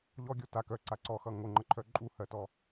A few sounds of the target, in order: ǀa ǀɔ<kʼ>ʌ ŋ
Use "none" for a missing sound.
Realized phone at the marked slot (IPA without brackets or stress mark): x